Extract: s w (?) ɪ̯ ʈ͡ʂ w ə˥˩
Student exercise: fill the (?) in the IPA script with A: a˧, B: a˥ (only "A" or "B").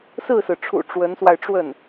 A